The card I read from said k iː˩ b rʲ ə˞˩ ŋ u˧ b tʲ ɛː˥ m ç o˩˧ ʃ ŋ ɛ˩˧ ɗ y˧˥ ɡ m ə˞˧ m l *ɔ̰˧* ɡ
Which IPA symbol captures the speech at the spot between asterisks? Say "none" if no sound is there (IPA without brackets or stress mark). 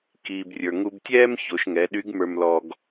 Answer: ɔ˧